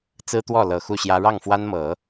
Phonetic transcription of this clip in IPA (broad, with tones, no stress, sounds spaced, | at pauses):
t͡s ɹ̩˥ t̪ w ɔ˥˩ l ɤ˨˩ x u˥˩ ɕ j ä˥ ɻ ɑ˥˩ ŋ f w a˥ n m ɤ˨˩˦